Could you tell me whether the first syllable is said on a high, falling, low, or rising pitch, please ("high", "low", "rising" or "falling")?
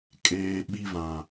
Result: low